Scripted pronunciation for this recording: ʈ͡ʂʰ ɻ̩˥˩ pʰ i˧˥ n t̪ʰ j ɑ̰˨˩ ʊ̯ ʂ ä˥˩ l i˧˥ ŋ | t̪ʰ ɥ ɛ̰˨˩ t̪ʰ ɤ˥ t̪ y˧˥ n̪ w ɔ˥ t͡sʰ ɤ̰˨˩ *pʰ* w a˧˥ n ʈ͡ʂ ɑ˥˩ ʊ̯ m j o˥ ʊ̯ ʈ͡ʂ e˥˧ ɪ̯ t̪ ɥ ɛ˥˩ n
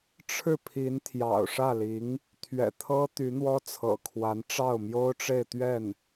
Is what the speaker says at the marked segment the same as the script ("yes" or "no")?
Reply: no